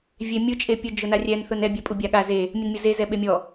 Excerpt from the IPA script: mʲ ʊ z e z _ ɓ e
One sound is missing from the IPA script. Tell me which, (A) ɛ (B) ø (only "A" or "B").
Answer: A